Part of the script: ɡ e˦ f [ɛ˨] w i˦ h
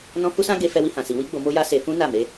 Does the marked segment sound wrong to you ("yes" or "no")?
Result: yes